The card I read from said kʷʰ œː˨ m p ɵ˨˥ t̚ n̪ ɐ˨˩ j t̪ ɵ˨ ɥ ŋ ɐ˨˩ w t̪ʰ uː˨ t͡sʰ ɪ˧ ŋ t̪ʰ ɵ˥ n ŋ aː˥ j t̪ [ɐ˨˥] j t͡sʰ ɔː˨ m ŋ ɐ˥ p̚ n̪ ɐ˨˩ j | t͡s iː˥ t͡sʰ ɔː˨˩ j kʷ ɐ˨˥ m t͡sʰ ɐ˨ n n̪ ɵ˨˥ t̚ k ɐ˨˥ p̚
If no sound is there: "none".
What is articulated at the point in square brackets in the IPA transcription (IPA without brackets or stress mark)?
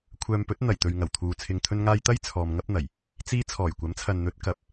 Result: ɐ˥